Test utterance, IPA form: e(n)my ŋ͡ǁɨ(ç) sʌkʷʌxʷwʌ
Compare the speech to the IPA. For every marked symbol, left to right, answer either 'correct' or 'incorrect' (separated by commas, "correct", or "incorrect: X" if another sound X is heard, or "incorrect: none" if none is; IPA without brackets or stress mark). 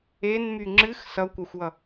correct, incorrect: x